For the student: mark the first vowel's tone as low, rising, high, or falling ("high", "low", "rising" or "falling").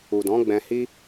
low